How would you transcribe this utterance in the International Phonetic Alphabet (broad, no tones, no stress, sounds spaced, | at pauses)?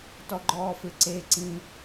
t ɔ ɡ͡ǃ ɔː f ɪ ǀ e ǀ ĩ